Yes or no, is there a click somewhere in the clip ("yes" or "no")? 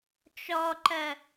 yes